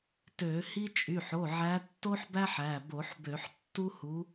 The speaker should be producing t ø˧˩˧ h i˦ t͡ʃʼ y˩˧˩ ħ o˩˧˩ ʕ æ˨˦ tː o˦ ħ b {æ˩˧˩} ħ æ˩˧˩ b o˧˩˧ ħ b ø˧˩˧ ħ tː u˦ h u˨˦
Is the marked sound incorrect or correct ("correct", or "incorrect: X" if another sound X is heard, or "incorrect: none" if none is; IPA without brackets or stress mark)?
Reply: incorrect: æ˦